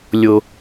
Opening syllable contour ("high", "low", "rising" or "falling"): low